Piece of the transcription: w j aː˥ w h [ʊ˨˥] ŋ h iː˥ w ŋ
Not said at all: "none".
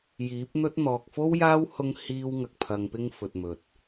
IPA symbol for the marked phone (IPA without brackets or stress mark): ʊ˥